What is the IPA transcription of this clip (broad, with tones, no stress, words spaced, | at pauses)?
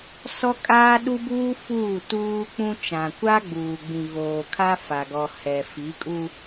sɔ˦kʼaː˦ɗu˦buː˦ fuː˦˨tuː˦k͡pũ˦ t͡ʃã˨kʷa˦ɡ͡buː˨ɡ͡bĩ˨ ɣoː˨kʰa˦fa˨ɡɔ˨ hɛ˨fi˨˦kʼu˦